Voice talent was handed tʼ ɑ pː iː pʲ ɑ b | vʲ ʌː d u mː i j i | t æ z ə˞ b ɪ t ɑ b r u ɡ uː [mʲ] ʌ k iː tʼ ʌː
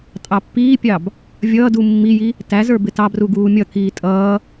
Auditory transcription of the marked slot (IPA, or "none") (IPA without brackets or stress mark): mʲ